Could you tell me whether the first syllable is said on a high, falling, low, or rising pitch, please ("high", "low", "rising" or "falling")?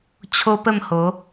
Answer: high